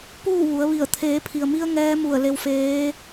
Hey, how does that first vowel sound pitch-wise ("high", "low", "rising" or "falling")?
falling